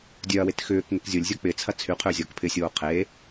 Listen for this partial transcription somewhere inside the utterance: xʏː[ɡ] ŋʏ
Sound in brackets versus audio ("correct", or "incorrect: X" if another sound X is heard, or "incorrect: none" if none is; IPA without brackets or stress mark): incorrect: k